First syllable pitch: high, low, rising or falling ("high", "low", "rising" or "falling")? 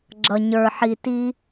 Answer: low